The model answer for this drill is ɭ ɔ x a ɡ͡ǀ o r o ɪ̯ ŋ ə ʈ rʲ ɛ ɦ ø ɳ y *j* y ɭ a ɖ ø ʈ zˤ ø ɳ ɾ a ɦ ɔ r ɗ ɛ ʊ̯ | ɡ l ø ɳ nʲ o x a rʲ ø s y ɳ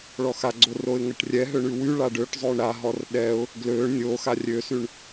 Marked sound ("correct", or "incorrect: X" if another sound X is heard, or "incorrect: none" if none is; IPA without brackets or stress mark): incorrect: w